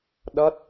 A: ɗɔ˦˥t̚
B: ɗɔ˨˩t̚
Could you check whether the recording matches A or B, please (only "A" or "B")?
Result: A